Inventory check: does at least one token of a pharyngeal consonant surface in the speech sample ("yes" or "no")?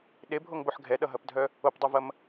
yes